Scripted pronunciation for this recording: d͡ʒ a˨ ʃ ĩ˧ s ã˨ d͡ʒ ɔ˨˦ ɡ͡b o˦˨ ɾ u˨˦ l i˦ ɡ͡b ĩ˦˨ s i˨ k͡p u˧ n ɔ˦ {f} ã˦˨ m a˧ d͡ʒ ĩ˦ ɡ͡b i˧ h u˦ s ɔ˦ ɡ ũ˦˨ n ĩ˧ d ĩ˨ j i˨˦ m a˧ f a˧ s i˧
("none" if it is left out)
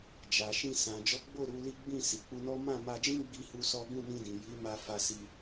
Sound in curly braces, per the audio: m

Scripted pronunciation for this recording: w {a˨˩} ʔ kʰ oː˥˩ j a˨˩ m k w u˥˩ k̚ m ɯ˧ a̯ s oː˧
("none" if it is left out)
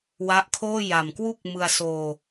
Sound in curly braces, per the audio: a˦˥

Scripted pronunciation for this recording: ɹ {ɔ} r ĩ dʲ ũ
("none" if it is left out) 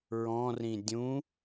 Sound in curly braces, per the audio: ɔ̃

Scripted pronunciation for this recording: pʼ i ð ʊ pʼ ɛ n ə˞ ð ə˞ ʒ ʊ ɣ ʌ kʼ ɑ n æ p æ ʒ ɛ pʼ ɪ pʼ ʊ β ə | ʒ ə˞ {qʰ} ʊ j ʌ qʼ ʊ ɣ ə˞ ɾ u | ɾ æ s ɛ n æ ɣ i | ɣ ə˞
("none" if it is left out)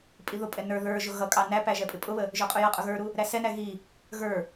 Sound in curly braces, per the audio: qʼ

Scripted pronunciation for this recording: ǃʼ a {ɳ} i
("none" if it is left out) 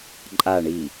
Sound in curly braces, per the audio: ɳ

